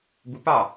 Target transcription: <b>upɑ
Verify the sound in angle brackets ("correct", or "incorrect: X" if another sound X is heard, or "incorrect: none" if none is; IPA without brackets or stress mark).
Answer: correct